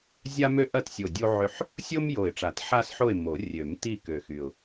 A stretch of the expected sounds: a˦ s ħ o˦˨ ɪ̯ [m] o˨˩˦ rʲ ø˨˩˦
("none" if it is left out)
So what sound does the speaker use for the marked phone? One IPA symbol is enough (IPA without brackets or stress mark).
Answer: m